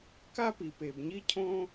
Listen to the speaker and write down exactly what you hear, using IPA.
k a˥ p i˩ p e˩ b ɲ i˥ cʰ õ˥

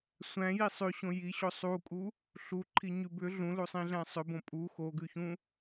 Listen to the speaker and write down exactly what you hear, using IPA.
sʷ æ̃ j i sˤ ʉ ɕ õ j i ɕ o sˤ u kʼ u | ɬ u ǃʰ i ɲ ʉ b ʏ ɮ ũ l u sˤ ĩ ɮ æ̃ sˤ ʏ b õ pʼ u x o ɡ ʉ ç ũ

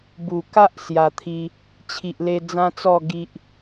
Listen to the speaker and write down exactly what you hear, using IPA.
b u˨˩ k a˦ ʔ s j a˧ t̪ʰ i˦ | t͡ɕʰ i˨ ʔ l e˧ d͡z ã˦ t͡s ɔ˥˧ ɡ i˦ ʔ

